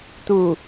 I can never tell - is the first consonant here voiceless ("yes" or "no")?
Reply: yes